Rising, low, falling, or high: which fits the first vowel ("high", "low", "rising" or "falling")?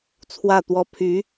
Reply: falling